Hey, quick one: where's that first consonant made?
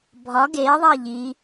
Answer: lips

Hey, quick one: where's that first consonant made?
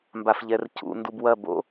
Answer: lips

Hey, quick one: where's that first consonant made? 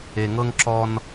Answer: velum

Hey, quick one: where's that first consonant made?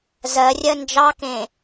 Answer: tongue tip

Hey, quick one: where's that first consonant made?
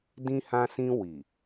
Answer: tongue tip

